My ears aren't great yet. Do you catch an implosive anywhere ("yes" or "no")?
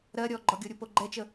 no